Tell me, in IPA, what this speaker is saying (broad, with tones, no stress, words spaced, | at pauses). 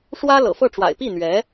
ʂwä˥ lɤ̰˨˩fɤ˥˩ʈ͡ʂwa̰˨˩ɪ̯ pi˥˩n̪ɥɛ˧˥